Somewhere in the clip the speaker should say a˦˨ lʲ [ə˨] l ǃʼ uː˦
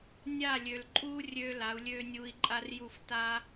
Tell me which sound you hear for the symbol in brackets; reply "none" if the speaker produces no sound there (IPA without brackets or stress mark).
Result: ø˨